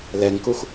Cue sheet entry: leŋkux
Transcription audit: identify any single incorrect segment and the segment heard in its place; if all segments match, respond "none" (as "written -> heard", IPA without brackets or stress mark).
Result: e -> ɛ